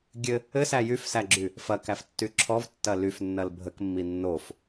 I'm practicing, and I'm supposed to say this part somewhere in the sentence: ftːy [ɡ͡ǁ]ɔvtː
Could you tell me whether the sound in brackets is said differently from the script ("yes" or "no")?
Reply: yes